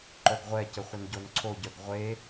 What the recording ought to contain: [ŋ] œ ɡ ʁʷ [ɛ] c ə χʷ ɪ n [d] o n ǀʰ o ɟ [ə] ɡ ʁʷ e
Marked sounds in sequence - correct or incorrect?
incorrect, correct, incorrect, incorrect

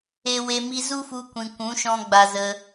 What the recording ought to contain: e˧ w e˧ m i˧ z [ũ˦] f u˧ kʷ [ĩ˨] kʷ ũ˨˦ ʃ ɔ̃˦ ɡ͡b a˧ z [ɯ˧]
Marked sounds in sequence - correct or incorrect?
incorrect, correct, incorrect

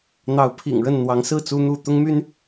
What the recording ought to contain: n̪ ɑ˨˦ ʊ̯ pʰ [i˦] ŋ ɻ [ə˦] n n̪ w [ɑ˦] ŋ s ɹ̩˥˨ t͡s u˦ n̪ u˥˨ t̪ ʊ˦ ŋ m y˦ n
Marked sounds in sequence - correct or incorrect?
incorrect, incorrect, incorrect

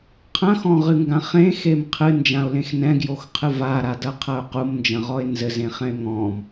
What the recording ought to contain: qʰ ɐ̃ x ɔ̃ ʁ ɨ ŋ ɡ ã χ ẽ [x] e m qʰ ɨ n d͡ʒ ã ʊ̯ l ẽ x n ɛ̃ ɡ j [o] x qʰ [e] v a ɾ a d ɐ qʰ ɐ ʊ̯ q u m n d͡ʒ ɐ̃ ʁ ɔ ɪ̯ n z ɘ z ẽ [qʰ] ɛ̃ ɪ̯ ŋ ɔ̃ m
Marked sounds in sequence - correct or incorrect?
correct, correct, incorrect, incorrect

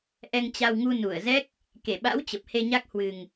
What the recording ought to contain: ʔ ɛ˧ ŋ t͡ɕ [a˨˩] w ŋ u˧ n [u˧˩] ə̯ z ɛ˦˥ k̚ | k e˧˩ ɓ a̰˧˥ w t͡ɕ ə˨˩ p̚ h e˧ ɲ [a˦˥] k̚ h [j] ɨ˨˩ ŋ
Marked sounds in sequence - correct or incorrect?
incorrect, correct, correct, incorrect

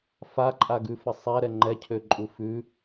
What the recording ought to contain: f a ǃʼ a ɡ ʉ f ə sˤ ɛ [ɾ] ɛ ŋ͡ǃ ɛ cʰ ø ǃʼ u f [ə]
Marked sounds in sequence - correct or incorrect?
correct, incorrect

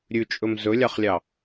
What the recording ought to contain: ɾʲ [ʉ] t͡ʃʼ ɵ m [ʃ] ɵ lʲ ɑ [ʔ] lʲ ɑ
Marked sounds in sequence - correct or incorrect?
correct, incorrect, incorrect

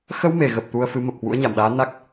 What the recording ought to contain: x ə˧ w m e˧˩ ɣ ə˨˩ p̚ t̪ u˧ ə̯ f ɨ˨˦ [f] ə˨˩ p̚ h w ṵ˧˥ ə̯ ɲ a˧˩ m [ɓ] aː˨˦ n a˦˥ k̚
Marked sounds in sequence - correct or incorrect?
incorrect, incorrect

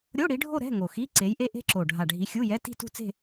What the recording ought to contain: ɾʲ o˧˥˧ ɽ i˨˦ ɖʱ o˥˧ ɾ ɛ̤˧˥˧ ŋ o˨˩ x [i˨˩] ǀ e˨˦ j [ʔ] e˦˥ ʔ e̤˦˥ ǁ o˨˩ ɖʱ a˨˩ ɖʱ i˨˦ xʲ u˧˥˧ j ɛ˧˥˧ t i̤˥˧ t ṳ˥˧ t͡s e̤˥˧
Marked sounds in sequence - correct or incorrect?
incorrect, correct

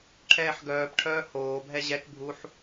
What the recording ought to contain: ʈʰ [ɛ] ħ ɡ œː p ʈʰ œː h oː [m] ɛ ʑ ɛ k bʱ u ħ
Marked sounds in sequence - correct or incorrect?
incorrect, incorrect

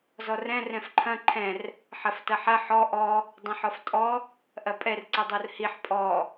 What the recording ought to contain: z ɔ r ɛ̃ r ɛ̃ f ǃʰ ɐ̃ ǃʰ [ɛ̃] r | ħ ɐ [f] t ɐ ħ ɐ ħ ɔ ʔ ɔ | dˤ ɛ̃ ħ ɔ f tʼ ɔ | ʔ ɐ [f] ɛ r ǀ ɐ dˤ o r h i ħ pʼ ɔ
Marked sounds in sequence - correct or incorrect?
correct, correct, incorrect

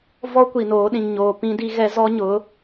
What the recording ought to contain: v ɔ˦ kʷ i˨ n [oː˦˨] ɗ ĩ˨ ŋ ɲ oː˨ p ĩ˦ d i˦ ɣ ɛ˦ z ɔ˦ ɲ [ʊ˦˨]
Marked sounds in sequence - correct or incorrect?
incorrect, incorrect

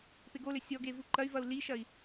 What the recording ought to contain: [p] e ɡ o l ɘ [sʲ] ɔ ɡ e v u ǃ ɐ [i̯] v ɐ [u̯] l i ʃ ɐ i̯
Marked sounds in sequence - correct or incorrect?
correct, correct, incorrect, correct

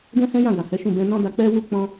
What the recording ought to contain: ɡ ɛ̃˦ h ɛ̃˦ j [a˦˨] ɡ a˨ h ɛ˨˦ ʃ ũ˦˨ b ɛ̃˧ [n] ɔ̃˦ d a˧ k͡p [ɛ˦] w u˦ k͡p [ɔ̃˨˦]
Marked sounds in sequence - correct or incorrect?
incorrect, correct, correct, incorrect

